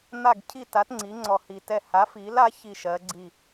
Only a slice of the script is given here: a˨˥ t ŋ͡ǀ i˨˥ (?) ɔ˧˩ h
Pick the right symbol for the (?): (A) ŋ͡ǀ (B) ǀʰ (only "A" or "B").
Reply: A